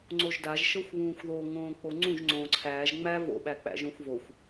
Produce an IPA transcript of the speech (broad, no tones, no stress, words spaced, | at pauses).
ŋ͡ǀoʒdaʒ ʃɤxʷβũːxʷðo ŋõːk͡poŋ͡ǀũʒ ŋ͡ǀõːǀʰæːʒ ŋ͡mæ vo̰ ɓæk͡pæ̰ʒõxʷvoxʷ